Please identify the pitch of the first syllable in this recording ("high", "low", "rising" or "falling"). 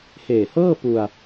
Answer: low